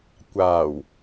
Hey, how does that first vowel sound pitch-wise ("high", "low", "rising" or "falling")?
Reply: low